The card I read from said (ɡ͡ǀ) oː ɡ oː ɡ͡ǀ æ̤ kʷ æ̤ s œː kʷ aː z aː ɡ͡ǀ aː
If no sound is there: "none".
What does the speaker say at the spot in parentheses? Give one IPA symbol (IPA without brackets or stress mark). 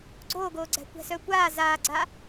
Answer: ɡ͡ǀ